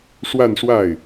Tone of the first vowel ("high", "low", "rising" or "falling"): falling